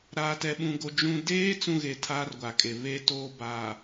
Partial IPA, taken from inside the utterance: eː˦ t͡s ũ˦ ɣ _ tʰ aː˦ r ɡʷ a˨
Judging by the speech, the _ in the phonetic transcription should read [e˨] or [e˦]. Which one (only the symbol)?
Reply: e˨